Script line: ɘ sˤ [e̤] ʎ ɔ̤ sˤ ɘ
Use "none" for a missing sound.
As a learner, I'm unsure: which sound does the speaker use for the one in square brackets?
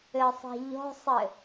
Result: e̤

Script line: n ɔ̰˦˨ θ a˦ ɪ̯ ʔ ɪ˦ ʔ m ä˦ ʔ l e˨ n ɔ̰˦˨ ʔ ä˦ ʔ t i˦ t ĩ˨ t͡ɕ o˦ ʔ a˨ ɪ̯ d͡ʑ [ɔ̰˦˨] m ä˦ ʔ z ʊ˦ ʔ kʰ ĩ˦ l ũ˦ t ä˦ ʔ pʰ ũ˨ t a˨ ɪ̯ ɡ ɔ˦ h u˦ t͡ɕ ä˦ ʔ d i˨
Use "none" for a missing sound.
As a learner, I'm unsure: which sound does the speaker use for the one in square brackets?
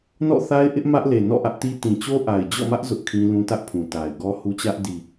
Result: ɔ̰˦˨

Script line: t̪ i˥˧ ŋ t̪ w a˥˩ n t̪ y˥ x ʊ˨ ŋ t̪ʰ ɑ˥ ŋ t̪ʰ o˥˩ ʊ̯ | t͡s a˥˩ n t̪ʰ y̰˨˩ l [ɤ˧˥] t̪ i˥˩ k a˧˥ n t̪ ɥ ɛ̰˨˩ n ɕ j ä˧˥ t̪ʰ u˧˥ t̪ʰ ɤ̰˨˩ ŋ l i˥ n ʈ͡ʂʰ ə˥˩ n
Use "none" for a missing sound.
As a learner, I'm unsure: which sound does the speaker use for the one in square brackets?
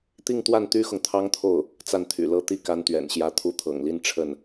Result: ɤ˥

